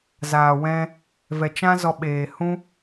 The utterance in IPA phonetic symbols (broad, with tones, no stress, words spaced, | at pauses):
zaː˨wɛ̃˧ | vɛ˨ t͡ʃã˦zɔ˧ ɓeː˨hũ˦